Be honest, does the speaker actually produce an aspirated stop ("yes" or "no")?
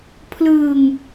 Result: yes